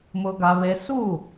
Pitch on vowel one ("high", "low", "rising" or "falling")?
high